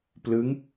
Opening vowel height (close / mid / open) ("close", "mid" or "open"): close